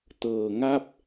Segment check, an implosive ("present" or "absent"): absent